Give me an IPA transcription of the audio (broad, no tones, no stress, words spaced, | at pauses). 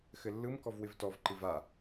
xɘlːɯmkɔv wɪvtɔvǃɨv a